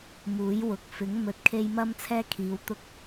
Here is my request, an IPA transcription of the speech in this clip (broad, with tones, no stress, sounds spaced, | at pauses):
m uː˨˥ j w ʊ˨˥ k̚ f ɪ˨˥ ŋ m ɵ˨ t̚ kʰ e˧ j m ɐ˥ m t͡sʰ ɛː˥ kʰ iː˨˧ w t̪ ʊ˥ k̚